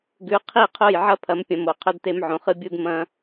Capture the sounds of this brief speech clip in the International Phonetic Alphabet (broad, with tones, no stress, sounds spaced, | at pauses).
ɡ ʉ˨˦ qʰ i˦˨ qʰ o˦˨ j ʕ ɐ˦ pʰ ɐ˨˦ m pʲ ɐ̃˨ m o˨ qʰ ɵ˦ d t e˦ m ʕ õ˨ χ ɨ˦ bʲ u˦ d m ɐ̃˦